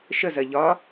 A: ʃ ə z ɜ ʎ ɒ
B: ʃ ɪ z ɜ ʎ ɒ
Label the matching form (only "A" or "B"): A